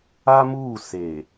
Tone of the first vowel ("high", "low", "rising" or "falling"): high